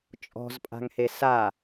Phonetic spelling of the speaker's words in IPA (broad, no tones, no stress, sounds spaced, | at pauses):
t͡ʃʼ ɔ̤ z pʼ a̤ ŋ h e s a